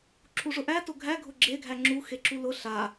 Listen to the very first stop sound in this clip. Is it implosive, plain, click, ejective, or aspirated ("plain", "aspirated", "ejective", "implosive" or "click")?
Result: click